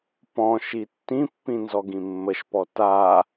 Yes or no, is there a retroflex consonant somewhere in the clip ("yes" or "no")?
no